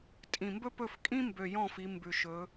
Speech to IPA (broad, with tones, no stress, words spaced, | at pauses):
tʼĩ˨˩mbɵ˥ pɵ˦˨fkʼĩ˥mbø˨˩jɔ̃˦˨ fi˨˦mbʉ˨˩ʃɵ˨˦